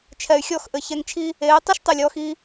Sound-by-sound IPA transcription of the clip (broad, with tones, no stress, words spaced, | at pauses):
t͡ʃʰɛ˨y̯xʲɔ˦˨xʔɘ˨ çɛ˧ŋt͡ʃʰi˦ | eː˨˦ tˤu˦ʃtˤe˨lʲ ɔː˧x i˧